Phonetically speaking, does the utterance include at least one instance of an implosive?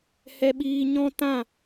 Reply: yes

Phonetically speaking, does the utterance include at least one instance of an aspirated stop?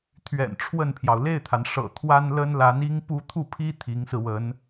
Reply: yes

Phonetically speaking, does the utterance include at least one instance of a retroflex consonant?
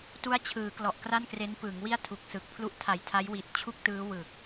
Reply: no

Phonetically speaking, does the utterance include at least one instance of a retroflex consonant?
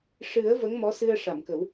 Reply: yes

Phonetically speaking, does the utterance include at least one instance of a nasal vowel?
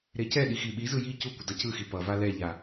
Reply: no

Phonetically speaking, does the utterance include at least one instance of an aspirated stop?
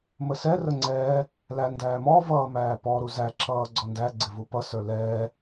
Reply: no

